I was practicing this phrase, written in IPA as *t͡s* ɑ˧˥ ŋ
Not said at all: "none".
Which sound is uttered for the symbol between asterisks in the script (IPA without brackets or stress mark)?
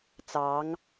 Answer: t͡s